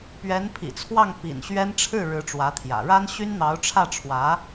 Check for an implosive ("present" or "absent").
absent